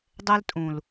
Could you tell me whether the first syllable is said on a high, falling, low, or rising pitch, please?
high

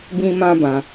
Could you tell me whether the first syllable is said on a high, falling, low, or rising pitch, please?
high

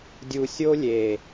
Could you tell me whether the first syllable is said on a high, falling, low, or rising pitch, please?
low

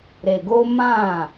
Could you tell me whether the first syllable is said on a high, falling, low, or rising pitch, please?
low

